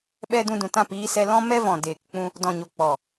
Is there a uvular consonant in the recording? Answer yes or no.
no